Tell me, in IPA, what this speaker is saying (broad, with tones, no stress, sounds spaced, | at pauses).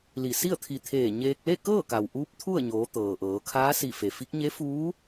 l i˧˩ s i˥˨ ə̯ t̪ʰ i˧˩ t̪ʰ eː˧˩ ɲ eː˧ k̚ l e˥˨ k ɤː˥˨ k a˩ w ʔ uː˧˥ p̚ t̪ʰ u˥˨ ə̯ ɲ oː˩˧ t̪ ɤː˩ ʔ ɤː˩˧ kʰ aː˧˥ s i˧˩ f e˩ f i˧˥ k̚ ɲ e˧˥ f uː˧˥